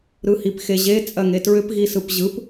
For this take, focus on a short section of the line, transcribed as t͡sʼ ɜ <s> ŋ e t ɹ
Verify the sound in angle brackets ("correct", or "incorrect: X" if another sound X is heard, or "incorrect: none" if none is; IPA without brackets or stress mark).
incorrect: none